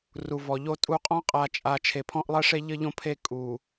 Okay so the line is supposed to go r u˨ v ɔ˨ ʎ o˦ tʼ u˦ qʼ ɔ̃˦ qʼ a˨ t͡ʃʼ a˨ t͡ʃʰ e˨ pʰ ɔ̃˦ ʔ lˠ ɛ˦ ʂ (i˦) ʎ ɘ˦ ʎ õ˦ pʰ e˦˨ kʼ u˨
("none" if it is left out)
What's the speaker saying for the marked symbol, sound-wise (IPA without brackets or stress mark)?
e˦